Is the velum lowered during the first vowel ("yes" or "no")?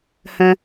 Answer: yes